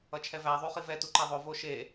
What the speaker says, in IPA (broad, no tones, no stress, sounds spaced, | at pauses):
ʌ t͡ʃʰ ɛ v æ ðˤ u χ i v ɛ t u ǃ ɛ ðˤ o v o ʃ e